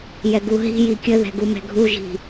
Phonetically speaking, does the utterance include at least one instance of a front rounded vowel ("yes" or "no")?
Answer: no